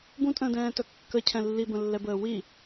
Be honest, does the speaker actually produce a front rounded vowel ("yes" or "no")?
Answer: yes